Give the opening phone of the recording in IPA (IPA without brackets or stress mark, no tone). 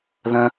ð